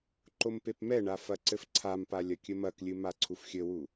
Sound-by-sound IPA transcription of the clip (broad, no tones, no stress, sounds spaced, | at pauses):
ǃ o m p e p m ɛ ɳ a f ɐ ǀ ɘ f ǀʰ a m p a lʲ ɐ kʲ ɘ m ɐ k lʲ ɨ m a ǀʰ u f xʲ ɘ w u